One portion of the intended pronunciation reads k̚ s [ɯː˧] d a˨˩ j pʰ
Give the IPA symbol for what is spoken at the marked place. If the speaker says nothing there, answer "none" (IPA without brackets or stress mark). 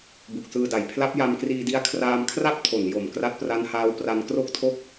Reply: ɯː˧